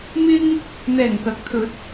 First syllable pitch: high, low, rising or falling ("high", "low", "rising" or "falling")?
high